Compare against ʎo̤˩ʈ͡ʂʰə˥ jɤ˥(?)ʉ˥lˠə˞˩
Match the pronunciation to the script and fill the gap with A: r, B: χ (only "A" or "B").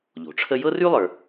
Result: A